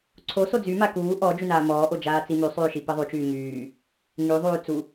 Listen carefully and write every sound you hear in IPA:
ǀʰ o s o d͡z y m a k uː ʔ ɔ d͡ʒ y n aː m ɔː ʔ o d͡ʒ aː t͡s i m y sˤ yː ʃ i p i ðˤ y t͡ʃ yː ŋ yː | ŋ y ðˤ yː t͡s u

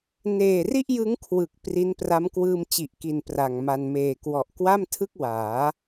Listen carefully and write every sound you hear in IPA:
n eː˨˩ r i˥˩ ʔ j ɯ˦˥ ŋ kʰ w ɯ˨˩ k̚ p r i˦˥ n p r a˦˥ m k w ɯː˧ m t͡ɕ i˨˩ ʔ k i˨˩ n p r a˨˩ ŋ m a˧ n m eː˨˩ k w ɔ˨˩ ʔ k w a˥˩ m tʰ ɯ˥˩ k̚ w aː˩˦

